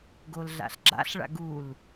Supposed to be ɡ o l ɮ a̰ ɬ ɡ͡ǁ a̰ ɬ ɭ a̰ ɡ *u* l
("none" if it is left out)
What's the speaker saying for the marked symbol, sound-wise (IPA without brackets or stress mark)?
u